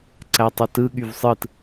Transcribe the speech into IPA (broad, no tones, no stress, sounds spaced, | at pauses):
ǀ æ tˤ o t ɯ ɠ y v sˤ ɯ t